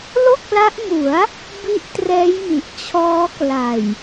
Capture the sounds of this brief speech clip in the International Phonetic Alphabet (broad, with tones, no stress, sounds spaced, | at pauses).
l o˥˩ k̚ l a˦˥ ʔ m u˩˦ a̯ | b i˦˥ ʔ t r ɛː˦˥ j m i˨˩ ʔ t͡ɕʰ ɔː˦˥ k l a˨˩ j